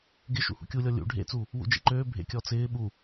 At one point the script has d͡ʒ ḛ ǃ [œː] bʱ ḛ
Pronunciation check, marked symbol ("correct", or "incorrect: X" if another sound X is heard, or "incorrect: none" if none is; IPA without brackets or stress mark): incorrect: øː